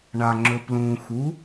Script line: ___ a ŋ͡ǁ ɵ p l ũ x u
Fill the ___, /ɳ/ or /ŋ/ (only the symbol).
ɳ